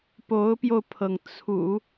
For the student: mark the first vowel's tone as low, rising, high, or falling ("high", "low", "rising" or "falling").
rising